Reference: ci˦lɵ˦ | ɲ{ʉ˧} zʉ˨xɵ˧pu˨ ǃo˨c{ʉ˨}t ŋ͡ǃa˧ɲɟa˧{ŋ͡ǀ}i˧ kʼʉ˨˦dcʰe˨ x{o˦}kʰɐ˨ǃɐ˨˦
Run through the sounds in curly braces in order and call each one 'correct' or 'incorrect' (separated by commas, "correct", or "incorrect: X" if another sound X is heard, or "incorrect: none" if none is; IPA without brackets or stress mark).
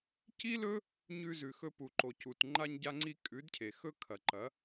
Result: correct, incorrect: u˨, correct, incorrect: ɵ˦